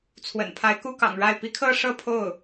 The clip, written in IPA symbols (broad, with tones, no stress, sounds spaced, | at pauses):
t͡sʰ w ə̰˨˩ n pʰ a˧˥ ɪ̯ k u˥ k ɑ̰˨˩ ŋ ɻ a˥˩ ɪ̯ p i˧˥ kʰ ɤ˥˧ ʂ ɤ˥˧ pʰ o˥˩ ʊ̯